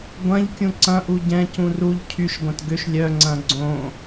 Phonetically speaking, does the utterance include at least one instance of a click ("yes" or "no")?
yes